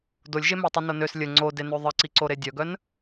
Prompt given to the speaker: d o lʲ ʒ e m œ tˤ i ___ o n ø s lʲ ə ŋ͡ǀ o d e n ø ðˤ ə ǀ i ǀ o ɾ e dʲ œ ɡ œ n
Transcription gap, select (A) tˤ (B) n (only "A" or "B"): B